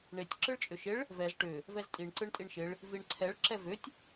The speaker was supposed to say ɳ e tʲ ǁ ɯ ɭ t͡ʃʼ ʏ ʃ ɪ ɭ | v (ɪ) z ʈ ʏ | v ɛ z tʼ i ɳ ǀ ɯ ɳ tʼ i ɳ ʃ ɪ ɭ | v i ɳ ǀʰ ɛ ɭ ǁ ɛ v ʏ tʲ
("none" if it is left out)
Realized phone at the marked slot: ɛ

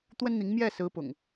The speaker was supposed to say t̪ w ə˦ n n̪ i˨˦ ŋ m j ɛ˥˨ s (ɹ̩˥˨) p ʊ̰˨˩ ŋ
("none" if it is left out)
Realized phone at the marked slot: ɹ̩˨˦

